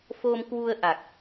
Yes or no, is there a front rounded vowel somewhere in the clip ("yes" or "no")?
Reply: no